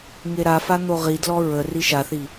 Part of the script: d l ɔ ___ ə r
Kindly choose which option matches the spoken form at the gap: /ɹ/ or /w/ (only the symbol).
ɹ